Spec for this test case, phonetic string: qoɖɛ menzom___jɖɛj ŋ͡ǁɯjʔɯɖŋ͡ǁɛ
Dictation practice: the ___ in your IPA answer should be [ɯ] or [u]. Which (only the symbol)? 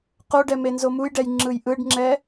u